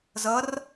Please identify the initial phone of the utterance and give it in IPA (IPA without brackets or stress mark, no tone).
z